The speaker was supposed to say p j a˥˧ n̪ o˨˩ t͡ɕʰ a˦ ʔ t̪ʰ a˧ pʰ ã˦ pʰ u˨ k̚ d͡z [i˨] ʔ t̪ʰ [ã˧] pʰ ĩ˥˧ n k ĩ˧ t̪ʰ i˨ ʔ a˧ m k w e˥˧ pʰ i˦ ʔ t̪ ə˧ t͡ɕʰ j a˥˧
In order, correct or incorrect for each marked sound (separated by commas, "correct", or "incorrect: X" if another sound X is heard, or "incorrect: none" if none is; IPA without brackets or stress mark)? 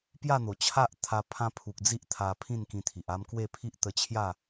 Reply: incorrect: i˦, incorrect: a˧